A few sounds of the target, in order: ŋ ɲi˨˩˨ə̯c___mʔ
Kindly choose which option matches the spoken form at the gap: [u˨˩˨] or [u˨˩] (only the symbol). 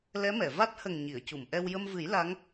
u˨˩˨